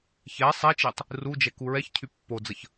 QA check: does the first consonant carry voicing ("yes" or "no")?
no